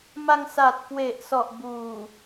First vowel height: low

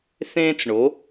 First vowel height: mid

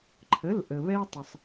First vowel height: mid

